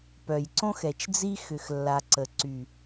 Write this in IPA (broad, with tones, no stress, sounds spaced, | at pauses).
p œ˨ j ǀ õ˦ x ɛ˨ t͡ʃ d͡z i˦ x ʏ˨ x lː a˨ ǀ ə˨ ǀ y˨